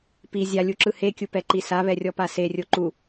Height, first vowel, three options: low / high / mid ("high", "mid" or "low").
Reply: high